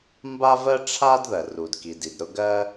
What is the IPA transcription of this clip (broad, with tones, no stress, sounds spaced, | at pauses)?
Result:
m b a˥ v ɜ˥ ʈ͡ʂʰ a˥ d ð ɜ˩ r u˩ d k i˩ d i˩ d ɾ ʊ˥ ɡ ɜ˥